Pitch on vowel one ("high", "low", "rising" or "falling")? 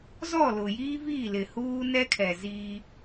falling